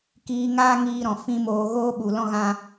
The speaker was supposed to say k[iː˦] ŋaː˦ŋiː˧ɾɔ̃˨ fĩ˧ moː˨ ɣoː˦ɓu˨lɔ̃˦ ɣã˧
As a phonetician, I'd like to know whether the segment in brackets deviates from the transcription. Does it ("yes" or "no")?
yes